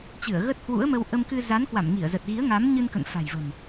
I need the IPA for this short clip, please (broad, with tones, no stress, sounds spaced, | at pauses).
t͡ɕ ɨ˧˩ ə̯ ɣ ə˦˥ t̚ h w ṵ˧˥ ə̯ m ə˧ w ʔ ə˧ m k ɨ˧ z a˨˦ n k w a˧˩ m ŋ i˧˩ ə̯ z ə˨˩ t̚ ɣ i˨˦ ə̯ ŋ a˨˦ m ɲ ɨ˧ n k ə̰˧˨ n f a̤˨˩ j v ə̤˨˩ m